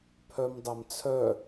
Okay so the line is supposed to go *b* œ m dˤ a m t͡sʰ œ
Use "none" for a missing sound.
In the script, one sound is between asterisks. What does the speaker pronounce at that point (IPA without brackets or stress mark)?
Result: pʰ